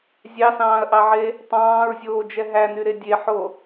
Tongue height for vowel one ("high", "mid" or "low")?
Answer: low